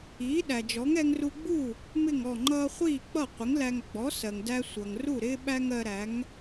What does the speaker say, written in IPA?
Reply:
iː˩˥ ɗ æ˩ d͡ʒ ɔ˩˥ ŋ ɛ˧ ŋ r u˧ ɡ͡b u˥˩ | m ɪ˥˩ ŋ ɔ˥˩ ŋ͡ǃ ʌː˥ χʷ iː˥˩ k͡p ʌ˥˩ qʷ ɪ˩˥ ŋ l æ˧ ŋ ɡ͡b ɔ˩˥ s ɜ˩ ŋ d æ˧ sʷ ʌ˩ ŋ r u˥˩ ɾ ɪː˥ ɓ æ˥ ŋ ɜ˧ ɾ æ˩˥ ŋ

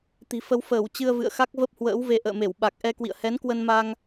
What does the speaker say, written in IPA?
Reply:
t̪ i̤˨˩ f ə˧ w f əː˧˩ w t͡ɕ ɨ˧ ə̯ v ɨ̰˧˨ ə̯ x a˦˥ k̚ v ə˦˥ p̚ h w ə̰ː˧˥ w v e˧ ʔ ə̰ː˧˨ m e˧˩ w ɓ a˨˩ k̚ ʔ ɛ˧ k w ḭ˧˨ ə̯ h ɛ˨˦ n k w ə˧ n m a˧ ŋ

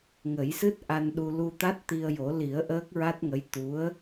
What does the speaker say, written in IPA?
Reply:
ŋ ə˨˩˦ j s ɨ˦˥ t̚ ʔ a˧ n ɗ u˧ l u˧ t̪ a˦˥ t̚ t̪ i˧ ə̯ j o˨˩˦ l i˨˩˦ ə̯ ʔ əː˦˥ k̚ ɹ a˦˥ t̚ ŋ ə˧˥ j t̪ u˧˥ ə̯

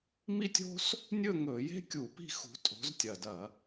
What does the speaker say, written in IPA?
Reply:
m i˥ tʲ o̤˥ s | nʲ ɵ˥˧ ŋ ɵ˧˩˧ j e̤˥ kʲ u˧˩˧ p i̤˥˧ x ṳ˨˦ tʼ o̤˨˦ z tʲ ɐ˨˩ d ɐ˧˩˧

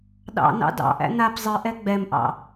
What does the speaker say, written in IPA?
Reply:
ɗ ɑ̰ n ɑ̰ d ɑ̰ ʔ æ̰ n a p zˤ ɨ ʔ ɛ ɡ͡b ɛ m ʔ ɑ̰

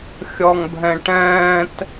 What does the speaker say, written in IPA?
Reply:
xʲ ɔ ŋ bʱ ɛ̃ ʈ ɛ̃ː t

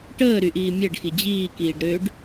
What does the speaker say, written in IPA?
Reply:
ʈ əː ɾ y ʔ iː mʲ ɛ ɖ x i d͡ʑ iː k iː ɖ ɾ ø ɖ

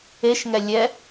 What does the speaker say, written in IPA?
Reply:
e ʃ ŋ ɛ lʲ ɛ

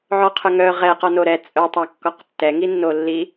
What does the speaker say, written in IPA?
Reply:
ʕ ɔ qʰ œ ŋ œ ʁ ɛ q ɔ n o ɾ ɛ t͡sʼ œ tˤ a kː ɔ q tː ɛ ŋ i nː o lː i

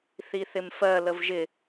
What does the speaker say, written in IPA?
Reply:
θ i θ ɪ m f ɜ l ə v ʒ ɪ

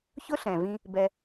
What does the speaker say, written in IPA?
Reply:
ç ʊ˦ ɬ ɛ̃˨ v ĩ˧ | b ɛ˧

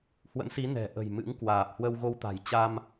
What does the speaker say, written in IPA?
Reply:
h w ə̰˧˥ n s i˨˦ n ɛ̤˨˩ ʔ ə̤˨˩ j m ɨ̰˧˥ ŋ k w aː˨˩ p̚ h w ə˧ w ɣ o˧ w t̪ a̤˨˩ j t͡ɕ a˧ m

